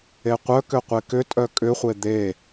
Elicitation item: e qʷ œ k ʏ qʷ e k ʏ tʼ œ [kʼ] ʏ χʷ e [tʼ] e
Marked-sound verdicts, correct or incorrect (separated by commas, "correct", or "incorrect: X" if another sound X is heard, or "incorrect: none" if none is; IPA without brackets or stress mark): correct, incorrect: d̪